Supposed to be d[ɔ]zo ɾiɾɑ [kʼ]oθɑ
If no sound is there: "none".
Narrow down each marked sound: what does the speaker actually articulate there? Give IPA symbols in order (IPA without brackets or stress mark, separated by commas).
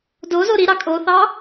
o, kʼ